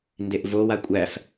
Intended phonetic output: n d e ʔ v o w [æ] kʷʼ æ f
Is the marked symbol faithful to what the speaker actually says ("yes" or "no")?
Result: no